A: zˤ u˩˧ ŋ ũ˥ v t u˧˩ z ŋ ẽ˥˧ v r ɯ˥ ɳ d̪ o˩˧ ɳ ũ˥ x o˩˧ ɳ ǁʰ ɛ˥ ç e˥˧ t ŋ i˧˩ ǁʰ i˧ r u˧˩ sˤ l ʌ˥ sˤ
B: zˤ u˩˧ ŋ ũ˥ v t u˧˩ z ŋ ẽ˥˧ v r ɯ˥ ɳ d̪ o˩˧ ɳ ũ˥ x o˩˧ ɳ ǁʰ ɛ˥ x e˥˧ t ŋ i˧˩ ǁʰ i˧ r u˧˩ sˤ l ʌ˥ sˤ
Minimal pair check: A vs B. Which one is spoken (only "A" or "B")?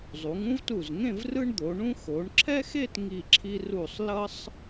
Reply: B